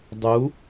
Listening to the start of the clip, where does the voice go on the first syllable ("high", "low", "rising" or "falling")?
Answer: rising